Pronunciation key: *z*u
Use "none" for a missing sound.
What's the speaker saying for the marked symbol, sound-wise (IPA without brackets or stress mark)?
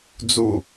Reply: d͡z